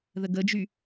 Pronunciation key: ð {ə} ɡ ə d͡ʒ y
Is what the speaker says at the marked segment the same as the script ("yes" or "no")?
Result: yes